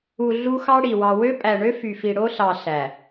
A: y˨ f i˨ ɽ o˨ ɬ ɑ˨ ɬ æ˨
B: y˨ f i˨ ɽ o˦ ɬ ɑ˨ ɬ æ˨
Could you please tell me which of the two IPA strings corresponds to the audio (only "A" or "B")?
B